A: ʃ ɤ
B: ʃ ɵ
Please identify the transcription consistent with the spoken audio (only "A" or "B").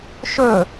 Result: B